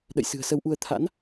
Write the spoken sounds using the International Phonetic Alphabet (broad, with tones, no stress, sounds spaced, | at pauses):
ɗ ə̰˧˨ j s ɨ̤˨˩ ə̯ s ə˨˦ w ʔ u˧ ə̯ t̪ʰ a̰˧˥ n